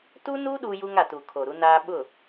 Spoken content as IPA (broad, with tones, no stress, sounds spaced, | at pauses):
t uː˦ n uː˦ ɗ uː˦ j u˦ ŋ a˨ t uː˨ kʰ o˨ ɾ u˦ n aː˦ ɓ ʊ˦˨